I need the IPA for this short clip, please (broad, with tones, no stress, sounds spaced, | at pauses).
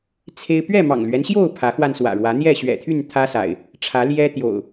t͡sʰ e˦ ɪ̯ p ɥ ɛ˥˨ m ɑ̰˨˩ ŋ l ɥ ɛ˦ n ɕ j o˥˨ ʊ̯ pʰ ä˨˦ x w a˧ n s w ä̰˨˩ ɻ w ä˨˦ n̪ j ɛ˥˨ ɕ ɥ ɛ̰˨˩ t̪ʰ y˥˨ n t̪ʰ ä˦ s a̰˨˩ ɪ̯ | ʈ͡ʂʰ ä˨˦ l j ɛ˦ t̪ j o̰˨˩ ʊ̯